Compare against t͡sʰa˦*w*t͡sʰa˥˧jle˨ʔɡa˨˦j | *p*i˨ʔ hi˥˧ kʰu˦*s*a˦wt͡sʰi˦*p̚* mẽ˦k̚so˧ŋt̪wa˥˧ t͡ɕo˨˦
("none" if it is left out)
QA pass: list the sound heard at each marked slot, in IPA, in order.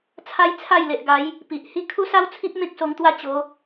j, p, s, p̚

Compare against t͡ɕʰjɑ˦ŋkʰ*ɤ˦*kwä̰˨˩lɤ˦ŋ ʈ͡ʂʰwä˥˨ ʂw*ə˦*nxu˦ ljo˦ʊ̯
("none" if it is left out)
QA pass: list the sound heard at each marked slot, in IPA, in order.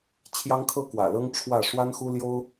ɤ˦, a˦

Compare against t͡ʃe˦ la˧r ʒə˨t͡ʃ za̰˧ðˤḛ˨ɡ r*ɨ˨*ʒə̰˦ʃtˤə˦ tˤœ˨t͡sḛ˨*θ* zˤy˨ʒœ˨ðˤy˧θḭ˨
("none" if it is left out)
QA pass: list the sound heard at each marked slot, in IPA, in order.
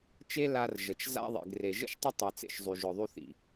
e˨, ʃ

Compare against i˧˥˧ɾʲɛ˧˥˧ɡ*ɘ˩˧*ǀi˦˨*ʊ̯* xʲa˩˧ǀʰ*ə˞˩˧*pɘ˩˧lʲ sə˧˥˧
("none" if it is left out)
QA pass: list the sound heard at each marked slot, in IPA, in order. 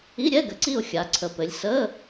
ɘ˩˧, ʊ̯, ə˩˧

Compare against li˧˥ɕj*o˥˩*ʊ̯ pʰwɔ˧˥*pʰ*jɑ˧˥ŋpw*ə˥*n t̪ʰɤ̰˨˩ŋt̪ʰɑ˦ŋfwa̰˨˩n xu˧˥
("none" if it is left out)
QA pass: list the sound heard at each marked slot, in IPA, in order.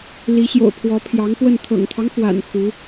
o̰˨˩, pʰ, ə˥˩

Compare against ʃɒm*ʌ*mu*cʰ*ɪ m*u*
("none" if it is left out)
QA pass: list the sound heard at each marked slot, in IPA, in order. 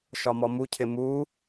ɔ, cʰ, u

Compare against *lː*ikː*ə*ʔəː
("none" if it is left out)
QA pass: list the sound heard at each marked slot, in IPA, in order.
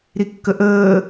ɾ, ə

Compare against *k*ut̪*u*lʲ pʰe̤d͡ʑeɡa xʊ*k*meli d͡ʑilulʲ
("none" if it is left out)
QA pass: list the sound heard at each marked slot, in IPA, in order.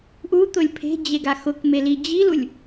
ʔ, ʊ, k

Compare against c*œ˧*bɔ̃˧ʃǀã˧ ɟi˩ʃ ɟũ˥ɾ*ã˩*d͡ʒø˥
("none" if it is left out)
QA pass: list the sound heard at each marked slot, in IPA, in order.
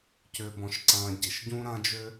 ø˧, ã˥

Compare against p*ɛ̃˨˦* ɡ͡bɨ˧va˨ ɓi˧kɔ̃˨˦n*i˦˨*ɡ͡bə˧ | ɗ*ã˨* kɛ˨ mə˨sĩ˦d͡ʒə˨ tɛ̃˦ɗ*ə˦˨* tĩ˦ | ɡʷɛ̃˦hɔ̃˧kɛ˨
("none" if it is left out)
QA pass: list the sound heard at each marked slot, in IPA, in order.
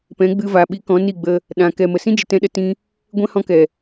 ɛ̃˨˦, i˦˨, ã˨, ə˧

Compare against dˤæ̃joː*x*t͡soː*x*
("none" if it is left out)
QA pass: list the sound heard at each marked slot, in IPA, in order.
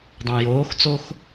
x, x

